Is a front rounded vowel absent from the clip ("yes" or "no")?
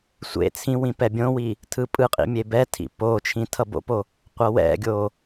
yes